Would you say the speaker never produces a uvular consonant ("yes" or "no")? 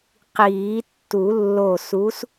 no